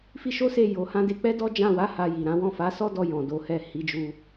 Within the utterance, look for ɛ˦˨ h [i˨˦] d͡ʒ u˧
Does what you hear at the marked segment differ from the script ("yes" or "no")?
no